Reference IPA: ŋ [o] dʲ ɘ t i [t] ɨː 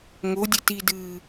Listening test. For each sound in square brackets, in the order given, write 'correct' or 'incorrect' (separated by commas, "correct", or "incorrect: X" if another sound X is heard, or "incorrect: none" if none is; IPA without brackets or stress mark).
correct, incorrect: d